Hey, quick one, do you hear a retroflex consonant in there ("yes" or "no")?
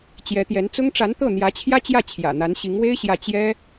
yes